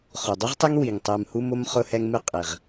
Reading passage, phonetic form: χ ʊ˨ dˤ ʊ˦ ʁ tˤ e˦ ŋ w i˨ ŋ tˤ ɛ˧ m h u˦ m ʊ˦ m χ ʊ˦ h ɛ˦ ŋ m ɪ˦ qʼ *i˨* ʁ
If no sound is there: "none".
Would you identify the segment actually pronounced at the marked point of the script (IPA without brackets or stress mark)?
i˨